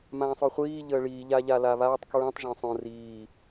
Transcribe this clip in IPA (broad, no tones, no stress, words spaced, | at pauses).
mãːsˤoχʷiː ʎəːɭiː ʎaʎalaβaːtˤ kɹĩtˤ ʒõsˤõ riː